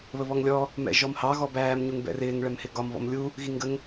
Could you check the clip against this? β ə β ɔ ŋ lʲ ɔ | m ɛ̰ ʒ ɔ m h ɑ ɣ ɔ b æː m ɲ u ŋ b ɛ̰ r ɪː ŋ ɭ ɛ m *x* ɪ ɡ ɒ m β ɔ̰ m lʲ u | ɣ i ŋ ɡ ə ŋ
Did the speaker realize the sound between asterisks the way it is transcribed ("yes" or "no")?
no